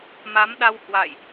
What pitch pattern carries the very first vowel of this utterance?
rising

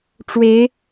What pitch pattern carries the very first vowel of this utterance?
rising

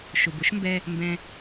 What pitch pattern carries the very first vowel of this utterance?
low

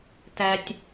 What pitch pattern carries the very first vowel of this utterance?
low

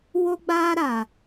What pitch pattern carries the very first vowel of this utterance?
high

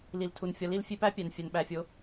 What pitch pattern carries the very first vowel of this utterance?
low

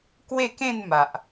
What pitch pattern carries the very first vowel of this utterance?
falling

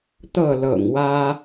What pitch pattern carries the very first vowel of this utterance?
falling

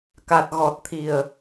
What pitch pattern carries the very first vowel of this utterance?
low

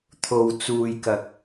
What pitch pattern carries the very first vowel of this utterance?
low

